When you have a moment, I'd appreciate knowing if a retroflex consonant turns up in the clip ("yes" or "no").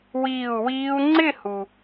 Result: no